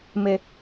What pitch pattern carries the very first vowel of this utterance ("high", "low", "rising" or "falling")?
low